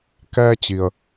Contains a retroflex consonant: no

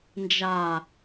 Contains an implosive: no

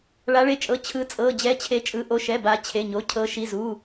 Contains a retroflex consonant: yes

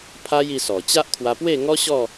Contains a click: no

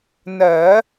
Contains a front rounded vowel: no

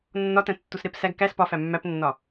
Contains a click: no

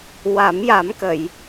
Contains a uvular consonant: no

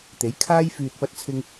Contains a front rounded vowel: yes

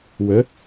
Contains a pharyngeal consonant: no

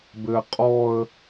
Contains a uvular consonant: yes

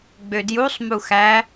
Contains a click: no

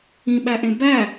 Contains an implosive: yes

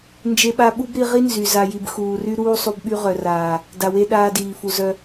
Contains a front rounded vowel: yes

